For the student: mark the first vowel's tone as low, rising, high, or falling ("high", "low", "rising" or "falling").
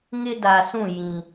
high